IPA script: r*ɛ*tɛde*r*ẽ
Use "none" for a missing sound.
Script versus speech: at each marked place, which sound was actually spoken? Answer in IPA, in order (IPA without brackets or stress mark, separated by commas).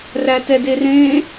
æ, r